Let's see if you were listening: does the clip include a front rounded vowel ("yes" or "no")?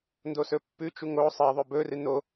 no